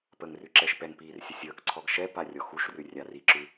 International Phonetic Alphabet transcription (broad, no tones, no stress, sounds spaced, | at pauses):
p ə ŋ r ʉ ǁ ɛ ʃ p ɛ ŋ p iː r sʲ ə sʲ əː k ǀʰ ɔ ɡ ʃ ɛ p a rʲ ɔ x u ʃ r ʉ rʲ a r i ǁ ʉ